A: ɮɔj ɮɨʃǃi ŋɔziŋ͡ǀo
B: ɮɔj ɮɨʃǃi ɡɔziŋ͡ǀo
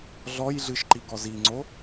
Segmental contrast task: B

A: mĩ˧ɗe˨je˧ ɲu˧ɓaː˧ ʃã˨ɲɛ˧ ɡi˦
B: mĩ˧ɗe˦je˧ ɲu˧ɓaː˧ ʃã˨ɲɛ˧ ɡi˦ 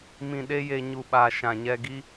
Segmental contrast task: B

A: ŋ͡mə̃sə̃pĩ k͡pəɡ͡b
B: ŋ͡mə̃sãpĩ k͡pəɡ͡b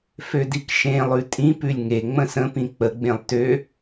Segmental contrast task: A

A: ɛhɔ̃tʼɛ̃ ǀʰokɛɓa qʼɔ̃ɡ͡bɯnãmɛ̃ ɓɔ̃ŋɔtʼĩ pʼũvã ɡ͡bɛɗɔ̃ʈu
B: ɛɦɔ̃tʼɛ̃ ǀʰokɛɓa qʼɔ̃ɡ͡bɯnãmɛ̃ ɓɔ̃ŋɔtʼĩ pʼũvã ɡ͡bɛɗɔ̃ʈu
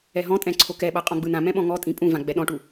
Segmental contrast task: B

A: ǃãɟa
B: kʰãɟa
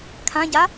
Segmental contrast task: B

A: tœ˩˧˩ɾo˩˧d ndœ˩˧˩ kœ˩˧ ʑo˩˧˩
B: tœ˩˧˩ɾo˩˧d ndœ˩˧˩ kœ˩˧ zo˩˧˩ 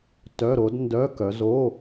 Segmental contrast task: B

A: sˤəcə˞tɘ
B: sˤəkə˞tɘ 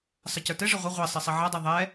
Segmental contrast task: A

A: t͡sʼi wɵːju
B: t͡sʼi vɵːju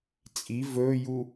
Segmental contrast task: B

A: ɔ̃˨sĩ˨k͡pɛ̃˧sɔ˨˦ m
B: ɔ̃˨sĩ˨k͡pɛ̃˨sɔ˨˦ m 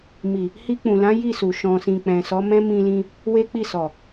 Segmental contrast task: B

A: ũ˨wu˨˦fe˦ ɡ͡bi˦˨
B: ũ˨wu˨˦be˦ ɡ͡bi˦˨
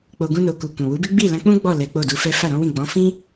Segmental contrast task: B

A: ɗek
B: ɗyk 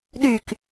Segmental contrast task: B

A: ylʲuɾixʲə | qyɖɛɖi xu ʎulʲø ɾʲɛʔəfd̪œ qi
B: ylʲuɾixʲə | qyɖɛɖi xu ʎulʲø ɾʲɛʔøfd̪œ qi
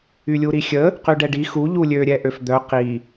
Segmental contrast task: B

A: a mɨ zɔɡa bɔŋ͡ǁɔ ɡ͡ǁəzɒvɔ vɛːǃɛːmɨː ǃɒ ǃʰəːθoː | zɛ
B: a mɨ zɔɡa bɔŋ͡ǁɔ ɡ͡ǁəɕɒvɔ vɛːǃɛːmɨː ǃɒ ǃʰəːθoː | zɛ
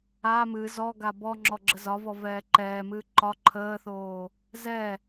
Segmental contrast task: A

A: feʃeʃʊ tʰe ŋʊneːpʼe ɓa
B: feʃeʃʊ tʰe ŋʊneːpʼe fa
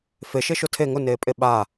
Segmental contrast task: A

